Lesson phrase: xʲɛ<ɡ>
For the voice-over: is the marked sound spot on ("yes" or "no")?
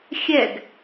yes